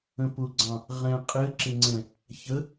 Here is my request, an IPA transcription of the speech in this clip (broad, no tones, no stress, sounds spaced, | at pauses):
ə̃ p ʊ ɡ͡ǀ ɑ̃ | ʁ ɛ̃ qʼ ɘ ǁ ɘ ŋ͡ǀ ɛ̃ | ç ə